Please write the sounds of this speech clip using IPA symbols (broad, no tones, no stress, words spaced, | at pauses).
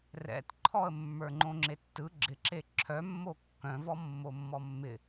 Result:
rɛ̰tǃʰɔə̯ mːə˞ŋ͡ǃõŋ͡ǁetːɯ ɡ͡ǁɪǁe ǁʰœmːo kːœ̃vɔ mːomːɔmːɪ